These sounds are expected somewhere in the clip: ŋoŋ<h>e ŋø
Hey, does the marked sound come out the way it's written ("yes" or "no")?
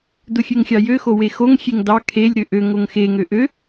no